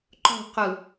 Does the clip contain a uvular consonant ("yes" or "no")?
yes